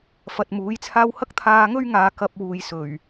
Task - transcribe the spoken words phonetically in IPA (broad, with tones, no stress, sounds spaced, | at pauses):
f ɐ˨ t̚ m uː˨˥ j t͡sʰ aː˥ w h ɐ˥ k̚ t̪ʰ aː˧ ŋ ɵ˥ ɥ ŋ aː˨˧ k ɐ˧ p̚ w uː˨ j s ɵ˨˩ ɥ